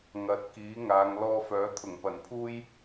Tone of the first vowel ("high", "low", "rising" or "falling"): rising